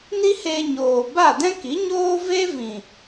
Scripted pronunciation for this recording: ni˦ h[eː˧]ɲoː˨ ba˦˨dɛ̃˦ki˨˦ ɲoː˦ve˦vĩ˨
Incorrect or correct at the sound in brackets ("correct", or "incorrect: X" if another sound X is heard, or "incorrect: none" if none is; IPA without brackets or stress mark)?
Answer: correct